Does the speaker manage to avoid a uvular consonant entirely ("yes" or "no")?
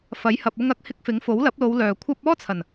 yes